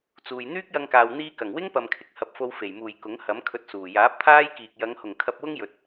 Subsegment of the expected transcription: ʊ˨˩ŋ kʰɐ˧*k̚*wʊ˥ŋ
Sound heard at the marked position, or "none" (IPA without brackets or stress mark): p̚